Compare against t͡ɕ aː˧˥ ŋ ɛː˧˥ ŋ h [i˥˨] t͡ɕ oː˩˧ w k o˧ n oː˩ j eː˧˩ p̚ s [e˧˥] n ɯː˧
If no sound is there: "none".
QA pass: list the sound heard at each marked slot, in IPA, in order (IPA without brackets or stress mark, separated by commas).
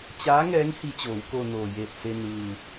i˧, e˧